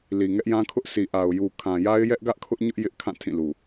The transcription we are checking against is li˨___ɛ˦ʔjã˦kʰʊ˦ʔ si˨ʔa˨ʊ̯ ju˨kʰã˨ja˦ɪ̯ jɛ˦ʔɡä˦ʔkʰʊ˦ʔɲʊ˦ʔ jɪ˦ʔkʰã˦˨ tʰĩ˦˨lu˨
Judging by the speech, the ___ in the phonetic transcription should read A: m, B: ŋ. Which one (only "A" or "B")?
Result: B